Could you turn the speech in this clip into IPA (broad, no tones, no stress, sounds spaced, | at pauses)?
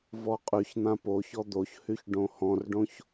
v ɔ qʼ y ç n̪ ã p o ç ɔ d̪ o ç h y ç ɖ õ h ɔ̃ r ɖ õ ç